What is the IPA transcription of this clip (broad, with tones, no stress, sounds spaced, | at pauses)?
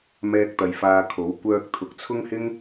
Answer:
m ɛː˧ k̚ t̪ ɐ˨ j f aː˧ kʰ o˨˥ w kʷ œː˧ k̚ t̪ʰ ʊ˨ k̚ t͡sʰ ʊ˥ ŋ h ɪ˥ ŋ